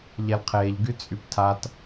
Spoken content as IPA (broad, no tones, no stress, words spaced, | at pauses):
ʎɛlqʰeʎ ɡyt͡sʼyptʰat